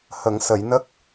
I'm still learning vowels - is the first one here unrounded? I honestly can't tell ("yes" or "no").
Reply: yes